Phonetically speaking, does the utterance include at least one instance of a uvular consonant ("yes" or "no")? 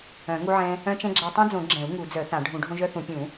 no